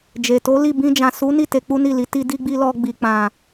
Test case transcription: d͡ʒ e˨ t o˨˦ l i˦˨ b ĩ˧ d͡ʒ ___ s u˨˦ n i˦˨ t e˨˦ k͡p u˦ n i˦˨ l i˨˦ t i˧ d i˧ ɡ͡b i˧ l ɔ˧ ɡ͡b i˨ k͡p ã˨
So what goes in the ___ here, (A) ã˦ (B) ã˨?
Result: B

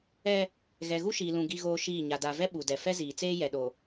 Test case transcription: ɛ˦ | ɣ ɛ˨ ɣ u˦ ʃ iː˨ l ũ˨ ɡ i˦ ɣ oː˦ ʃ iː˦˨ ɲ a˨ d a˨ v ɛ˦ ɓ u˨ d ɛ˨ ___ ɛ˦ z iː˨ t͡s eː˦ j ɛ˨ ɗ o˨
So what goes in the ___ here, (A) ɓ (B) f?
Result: B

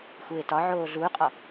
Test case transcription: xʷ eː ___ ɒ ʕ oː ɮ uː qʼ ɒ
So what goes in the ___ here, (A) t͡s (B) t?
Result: B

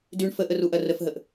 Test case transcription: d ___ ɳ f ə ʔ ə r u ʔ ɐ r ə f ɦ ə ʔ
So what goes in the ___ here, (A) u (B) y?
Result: B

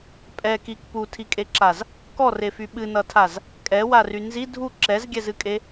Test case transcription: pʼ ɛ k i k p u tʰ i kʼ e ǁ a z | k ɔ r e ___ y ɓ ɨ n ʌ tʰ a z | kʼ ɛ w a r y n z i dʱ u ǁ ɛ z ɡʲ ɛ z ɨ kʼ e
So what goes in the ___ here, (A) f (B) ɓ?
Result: A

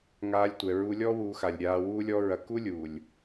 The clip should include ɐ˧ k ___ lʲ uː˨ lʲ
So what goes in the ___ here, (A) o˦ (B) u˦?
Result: B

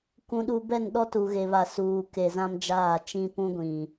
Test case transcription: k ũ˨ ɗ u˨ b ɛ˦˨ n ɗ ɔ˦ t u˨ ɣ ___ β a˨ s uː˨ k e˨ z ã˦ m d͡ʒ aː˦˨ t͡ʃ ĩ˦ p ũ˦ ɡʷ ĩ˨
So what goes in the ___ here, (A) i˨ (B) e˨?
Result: B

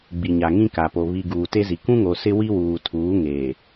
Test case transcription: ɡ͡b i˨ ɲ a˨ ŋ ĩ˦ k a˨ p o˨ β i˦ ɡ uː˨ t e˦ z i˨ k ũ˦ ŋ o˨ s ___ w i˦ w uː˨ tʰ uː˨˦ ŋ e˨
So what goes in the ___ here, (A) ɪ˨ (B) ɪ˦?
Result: B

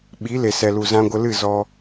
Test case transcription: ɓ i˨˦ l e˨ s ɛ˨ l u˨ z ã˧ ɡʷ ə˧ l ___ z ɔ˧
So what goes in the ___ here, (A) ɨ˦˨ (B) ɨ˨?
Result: A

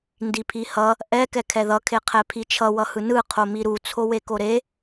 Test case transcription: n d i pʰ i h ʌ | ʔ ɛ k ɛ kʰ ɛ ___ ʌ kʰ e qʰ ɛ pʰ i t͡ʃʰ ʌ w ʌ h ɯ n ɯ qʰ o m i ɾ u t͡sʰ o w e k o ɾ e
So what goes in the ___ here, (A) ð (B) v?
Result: A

